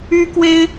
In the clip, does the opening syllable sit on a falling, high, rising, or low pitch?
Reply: high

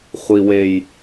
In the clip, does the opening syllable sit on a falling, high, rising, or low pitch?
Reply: low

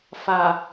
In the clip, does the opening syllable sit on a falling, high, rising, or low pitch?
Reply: low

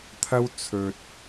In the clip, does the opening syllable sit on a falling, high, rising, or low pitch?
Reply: high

